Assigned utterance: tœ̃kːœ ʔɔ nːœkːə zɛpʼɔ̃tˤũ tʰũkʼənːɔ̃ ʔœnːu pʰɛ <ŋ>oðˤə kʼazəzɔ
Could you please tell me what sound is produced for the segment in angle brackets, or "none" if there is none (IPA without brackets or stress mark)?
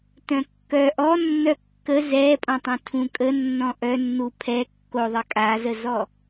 kː